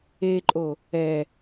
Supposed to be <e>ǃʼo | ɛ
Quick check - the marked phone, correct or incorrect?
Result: correct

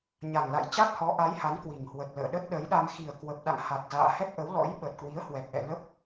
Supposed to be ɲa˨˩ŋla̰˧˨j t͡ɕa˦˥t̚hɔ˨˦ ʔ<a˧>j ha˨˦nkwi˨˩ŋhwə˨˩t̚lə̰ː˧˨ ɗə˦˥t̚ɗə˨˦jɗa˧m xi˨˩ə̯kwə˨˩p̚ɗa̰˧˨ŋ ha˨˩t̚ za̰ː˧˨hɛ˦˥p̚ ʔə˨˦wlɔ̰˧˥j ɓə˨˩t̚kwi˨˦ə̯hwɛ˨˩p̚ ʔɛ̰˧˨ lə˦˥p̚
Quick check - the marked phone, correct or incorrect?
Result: incorrect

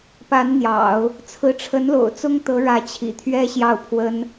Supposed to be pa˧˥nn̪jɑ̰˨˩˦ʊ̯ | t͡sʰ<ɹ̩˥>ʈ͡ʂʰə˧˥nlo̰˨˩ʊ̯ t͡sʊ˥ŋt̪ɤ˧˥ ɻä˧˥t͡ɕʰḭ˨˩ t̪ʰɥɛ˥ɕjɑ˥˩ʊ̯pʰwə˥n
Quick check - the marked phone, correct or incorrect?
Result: incorrect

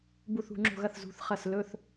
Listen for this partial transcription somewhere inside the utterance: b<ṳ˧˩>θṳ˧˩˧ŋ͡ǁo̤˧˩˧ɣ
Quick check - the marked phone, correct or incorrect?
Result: incorrect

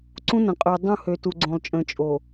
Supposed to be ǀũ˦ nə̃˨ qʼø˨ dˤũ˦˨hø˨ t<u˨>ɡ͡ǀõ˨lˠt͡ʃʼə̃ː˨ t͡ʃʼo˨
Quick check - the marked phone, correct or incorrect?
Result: correct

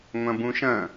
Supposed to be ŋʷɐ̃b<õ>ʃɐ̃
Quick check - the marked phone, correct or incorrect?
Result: incorrect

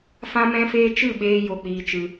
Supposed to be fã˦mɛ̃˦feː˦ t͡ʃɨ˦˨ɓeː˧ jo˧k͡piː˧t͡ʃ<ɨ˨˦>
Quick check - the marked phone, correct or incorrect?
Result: incorrect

